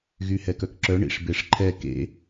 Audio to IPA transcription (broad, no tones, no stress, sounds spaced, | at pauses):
ɣ y h ɛ k œ k ǁ œ ɳ ḭ ʂ b e ʂ ǃʰ ɛ k ḛ